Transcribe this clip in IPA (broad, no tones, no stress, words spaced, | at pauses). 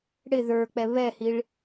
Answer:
ɽɪ ðə˞k͡pɛ βɛhiɭ